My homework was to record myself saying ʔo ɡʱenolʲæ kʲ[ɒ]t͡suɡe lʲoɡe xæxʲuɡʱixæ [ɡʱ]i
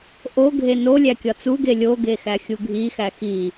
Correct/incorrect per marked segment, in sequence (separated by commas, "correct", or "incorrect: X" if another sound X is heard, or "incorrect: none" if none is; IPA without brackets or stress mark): correct, incorrect: x